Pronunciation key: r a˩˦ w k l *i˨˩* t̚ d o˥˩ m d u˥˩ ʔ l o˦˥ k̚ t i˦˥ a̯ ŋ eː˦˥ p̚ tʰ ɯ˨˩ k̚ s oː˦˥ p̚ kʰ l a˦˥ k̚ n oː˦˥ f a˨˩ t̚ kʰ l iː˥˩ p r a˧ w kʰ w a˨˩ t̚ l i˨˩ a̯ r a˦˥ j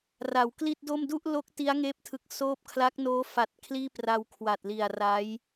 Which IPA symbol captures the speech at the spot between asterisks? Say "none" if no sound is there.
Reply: i˥˩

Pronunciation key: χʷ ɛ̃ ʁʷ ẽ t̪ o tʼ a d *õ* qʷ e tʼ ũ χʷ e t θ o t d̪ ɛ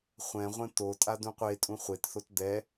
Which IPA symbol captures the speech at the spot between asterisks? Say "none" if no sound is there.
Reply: ũ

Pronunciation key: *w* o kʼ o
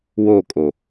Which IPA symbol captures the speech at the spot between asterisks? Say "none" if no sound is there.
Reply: w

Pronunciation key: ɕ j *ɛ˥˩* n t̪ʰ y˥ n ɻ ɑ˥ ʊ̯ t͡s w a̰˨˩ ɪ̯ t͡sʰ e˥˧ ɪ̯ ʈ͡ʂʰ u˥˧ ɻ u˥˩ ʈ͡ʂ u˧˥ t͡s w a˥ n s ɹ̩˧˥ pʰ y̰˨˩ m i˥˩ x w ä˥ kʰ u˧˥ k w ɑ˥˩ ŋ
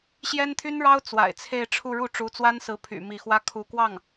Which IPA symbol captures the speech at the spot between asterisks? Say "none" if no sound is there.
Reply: ɛ˥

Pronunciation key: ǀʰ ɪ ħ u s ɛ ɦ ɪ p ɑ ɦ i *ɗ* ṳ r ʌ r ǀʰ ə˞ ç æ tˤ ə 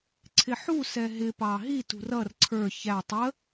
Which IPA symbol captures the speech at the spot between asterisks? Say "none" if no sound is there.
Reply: t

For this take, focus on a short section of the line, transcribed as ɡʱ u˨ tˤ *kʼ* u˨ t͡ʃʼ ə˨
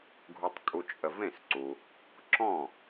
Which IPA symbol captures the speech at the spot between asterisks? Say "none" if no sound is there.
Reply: kʼ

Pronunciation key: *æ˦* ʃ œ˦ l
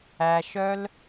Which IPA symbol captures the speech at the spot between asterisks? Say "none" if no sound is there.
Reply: æ˦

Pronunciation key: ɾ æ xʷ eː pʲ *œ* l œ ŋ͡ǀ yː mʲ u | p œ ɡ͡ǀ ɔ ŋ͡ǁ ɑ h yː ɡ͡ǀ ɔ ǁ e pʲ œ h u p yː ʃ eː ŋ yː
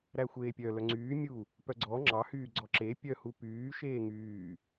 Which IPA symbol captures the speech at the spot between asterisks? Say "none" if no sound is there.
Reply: œ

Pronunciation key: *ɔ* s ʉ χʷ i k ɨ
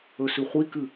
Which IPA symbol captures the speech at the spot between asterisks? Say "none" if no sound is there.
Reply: ɵ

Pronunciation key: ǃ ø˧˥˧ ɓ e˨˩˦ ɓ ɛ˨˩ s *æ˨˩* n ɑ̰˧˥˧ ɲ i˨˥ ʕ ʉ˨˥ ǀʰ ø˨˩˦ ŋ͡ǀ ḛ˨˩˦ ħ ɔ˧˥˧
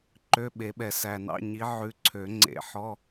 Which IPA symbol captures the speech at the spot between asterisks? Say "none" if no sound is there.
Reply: æ˨˩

